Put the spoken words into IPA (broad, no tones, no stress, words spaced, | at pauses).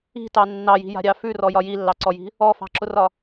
i̤tɑ nːɑji̤ja̤ɾʲɑ fʉrɔjɒ jilːɑǀɔji̤ | ɔfɑ̤ǁʊrɒ